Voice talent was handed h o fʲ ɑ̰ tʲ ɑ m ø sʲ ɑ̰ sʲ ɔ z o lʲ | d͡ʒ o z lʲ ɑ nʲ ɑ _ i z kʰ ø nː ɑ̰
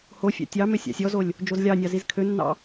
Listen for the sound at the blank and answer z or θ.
z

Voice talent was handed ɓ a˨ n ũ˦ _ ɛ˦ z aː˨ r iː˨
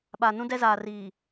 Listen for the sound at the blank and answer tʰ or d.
d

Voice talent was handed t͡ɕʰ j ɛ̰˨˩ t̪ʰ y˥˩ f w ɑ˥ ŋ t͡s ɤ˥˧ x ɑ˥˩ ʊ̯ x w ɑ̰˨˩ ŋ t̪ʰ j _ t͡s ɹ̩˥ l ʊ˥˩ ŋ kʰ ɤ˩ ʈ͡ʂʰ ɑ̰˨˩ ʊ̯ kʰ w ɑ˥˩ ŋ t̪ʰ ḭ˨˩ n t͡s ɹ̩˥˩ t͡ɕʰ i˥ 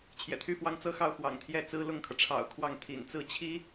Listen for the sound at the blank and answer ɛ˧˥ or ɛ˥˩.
ɛ˥˩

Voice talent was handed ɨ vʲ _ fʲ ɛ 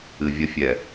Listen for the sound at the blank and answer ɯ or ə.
ə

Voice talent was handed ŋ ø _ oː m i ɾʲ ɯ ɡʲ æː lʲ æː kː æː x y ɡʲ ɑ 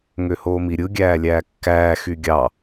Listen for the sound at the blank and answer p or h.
h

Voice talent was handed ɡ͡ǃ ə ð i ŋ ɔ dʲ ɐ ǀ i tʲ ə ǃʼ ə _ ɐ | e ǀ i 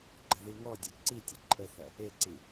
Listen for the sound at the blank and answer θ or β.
θ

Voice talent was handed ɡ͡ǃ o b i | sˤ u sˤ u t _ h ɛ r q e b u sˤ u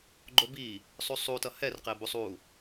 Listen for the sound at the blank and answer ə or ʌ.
ʌ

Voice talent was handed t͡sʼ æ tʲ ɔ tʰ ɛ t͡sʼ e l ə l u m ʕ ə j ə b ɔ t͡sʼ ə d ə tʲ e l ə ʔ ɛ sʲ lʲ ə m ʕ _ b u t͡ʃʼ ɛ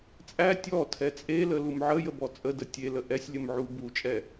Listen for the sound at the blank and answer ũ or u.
u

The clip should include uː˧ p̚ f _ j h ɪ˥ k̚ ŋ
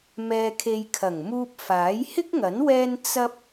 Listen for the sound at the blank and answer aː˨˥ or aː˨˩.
aː˨˥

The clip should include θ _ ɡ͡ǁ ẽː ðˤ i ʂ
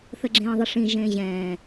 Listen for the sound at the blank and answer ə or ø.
ə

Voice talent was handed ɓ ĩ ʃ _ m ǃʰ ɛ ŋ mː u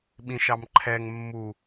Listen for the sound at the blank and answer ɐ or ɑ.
ɑ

